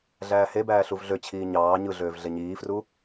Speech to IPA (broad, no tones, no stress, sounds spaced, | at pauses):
ɮ æː h e b æː ɬ u v ɮ ø t͡ɕʰ iː ɲ ɑː ɲ ɯ ɮ øː v ɮ e ɲ iː f r u